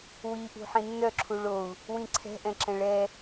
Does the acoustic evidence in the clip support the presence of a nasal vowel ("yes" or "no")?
yes